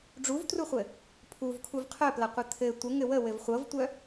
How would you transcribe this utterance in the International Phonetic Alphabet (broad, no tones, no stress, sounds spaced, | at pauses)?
ɖ͡ʐ u v t r u χʷ ɘ | pʰ u v kʰ u v qʰ œ p l ɐ qʷ ɘ t̪ʰ ɘ tʷ ə ŋ ɘ w ə w ɘ v χʷ ɤ v tʷ œ